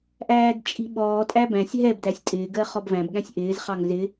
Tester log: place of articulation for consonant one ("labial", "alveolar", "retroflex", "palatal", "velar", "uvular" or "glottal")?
glottal